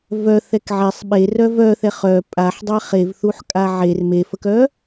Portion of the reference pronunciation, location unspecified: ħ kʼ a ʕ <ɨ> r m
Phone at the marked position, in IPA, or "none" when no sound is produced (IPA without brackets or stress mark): e